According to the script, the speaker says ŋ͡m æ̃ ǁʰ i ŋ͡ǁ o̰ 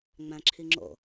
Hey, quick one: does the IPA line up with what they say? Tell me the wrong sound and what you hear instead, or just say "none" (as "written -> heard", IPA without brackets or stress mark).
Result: none